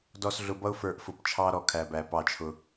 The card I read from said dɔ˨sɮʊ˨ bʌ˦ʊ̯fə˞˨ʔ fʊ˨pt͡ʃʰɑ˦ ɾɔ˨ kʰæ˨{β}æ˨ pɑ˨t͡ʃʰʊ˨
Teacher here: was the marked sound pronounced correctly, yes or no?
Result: no